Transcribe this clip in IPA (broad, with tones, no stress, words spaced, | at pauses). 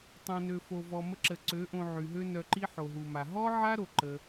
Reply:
tˤõ˨nø˨ fo˨vɔ˨mə˧ǁə˨ ǀø˨˦ʔõ˧ ʕy˨ɦø˦ nœ˧ǃi˦ ħo˨ɦu˨ ma˨ ɦɔ˦ʕa˦ ɾo˦ǃə˦